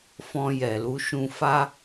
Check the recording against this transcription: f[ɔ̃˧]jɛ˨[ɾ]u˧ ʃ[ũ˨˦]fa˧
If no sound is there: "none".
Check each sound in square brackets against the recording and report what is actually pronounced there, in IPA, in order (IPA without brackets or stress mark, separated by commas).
ɔ̃˧, l, ũ˨